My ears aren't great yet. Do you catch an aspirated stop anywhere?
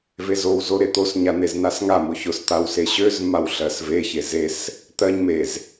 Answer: no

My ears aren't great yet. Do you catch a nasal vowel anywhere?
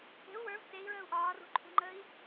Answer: no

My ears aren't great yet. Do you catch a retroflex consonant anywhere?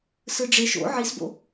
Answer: yes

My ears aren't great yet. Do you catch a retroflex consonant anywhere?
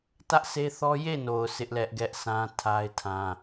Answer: no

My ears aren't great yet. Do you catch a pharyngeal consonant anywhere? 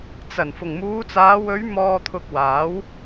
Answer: no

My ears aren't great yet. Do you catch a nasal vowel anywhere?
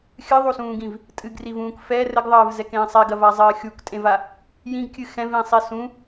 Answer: yes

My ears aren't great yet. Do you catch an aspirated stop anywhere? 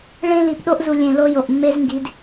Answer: no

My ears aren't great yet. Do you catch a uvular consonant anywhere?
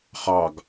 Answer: yes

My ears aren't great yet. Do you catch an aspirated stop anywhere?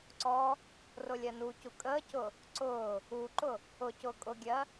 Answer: no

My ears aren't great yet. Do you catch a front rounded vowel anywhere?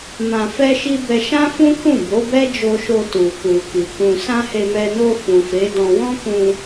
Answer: no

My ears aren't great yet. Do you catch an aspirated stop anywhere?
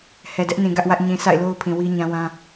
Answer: yes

